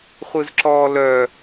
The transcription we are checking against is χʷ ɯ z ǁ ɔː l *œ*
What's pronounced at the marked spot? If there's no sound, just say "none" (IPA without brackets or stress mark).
œ